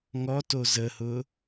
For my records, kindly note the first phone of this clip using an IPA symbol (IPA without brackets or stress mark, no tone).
ŋ